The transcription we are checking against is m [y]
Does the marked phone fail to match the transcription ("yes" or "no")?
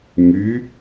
no